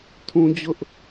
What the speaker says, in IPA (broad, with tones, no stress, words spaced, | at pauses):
tʰũ˦d͡ʑʊ˦ʔ